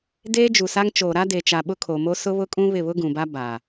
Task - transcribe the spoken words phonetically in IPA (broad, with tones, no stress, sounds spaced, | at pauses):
d eː˦ d͡ʒ u˨ s a˦ ŋ t͡ʃ oː˨ ɾ a˦ d e˨ t͡ʃ a˨ ɓ ʊ˦ kʰ o˨ m o˦ s ʊ˦ β ʊ˦ kʼ ũ˦ β ɪ˦˨ β ʊ˦ ɡ ũ˨ b a˦ b a˨